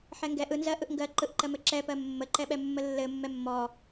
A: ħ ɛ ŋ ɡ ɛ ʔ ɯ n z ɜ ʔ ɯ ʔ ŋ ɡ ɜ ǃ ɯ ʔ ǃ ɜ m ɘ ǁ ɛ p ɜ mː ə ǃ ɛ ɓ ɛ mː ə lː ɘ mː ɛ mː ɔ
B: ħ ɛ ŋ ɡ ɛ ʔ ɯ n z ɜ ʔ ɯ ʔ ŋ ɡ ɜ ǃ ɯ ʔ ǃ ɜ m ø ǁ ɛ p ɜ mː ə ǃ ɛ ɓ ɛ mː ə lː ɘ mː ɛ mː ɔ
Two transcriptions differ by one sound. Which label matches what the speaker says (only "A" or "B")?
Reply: A